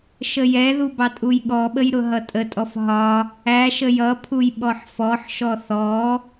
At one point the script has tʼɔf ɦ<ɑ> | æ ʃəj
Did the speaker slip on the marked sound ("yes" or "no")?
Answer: yes